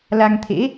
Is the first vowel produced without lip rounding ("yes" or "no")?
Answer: yes